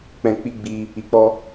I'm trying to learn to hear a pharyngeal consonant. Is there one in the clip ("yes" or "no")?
no